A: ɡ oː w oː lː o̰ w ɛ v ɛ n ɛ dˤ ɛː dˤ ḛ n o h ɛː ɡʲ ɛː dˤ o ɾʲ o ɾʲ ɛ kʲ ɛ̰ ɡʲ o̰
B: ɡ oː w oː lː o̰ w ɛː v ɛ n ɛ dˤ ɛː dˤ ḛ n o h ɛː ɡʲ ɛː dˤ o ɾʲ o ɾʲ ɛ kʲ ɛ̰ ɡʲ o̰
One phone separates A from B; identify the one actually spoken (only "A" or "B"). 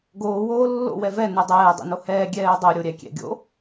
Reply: A